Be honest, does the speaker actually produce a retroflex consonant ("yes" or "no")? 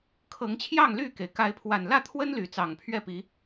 no